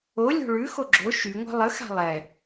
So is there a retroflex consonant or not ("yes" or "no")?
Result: yes